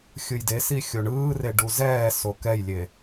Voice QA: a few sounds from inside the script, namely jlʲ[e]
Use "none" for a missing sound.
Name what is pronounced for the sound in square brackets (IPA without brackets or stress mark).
e